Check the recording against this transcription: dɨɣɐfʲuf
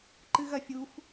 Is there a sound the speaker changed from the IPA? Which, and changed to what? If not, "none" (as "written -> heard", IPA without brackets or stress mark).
d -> ǃ